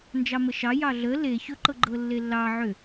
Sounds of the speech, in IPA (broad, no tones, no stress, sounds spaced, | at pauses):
n d͡ʒ ɑ m ə ʃ ɑ j ɑ ɮ ə l e ç ɵ ǃ ɤ ɡ͡ǃ ɤ lː e lː ɑ ʕ ʏ